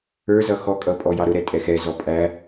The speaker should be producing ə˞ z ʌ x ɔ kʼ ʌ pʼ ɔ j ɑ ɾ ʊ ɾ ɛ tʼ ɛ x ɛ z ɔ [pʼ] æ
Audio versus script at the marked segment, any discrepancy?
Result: no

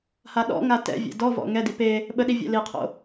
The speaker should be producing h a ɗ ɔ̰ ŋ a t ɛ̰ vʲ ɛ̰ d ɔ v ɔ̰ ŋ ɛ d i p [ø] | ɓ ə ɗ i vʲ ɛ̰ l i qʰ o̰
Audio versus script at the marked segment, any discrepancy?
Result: yes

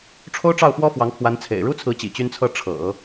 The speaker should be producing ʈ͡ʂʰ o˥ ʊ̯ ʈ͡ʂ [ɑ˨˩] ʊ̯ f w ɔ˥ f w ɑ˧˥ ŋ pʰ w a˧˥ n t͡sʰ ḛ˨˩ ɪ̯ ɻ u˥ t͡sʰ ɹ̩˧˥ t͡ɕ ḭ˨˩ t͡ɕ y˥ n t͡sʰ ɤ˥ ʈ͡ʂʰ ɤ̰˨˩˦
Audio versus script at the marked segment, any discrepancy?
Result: yes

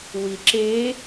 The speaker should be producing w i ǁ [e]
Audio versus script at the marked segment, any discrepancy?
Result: no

